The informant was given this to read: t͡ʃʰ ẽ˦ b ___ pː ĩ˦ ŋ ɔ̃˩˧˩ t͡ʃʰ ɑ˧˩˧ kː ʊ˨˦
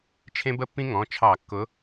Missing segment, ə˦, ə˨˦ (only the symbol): ə˦